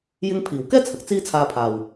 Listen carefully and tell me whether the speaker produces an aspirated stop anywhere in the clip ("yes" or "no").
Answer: yes